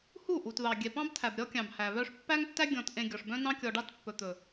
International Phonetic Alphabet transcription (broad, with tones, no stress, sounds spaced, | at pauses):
h u˦˨ ʔ u˨ t ð ɑ˨ ɡʲ ɛ˨ p ɑ̃˦ b tʰ æ˨ b ɾʲ ɔ˦ kʲ ɑ̃˨ b h æ˨ β œ˦ ʂ pː æ˦ ŋ tː æ˦ ɡʲ ɔ̃˨ t ʔ ẽ˨ ɡʲ ɔ˨ ʂ b œ̃˦ n ɑ̃˦ kʲ ɔ˨ ɖ ɑ˦ t pː ɵ˨ t̪ ɵ˨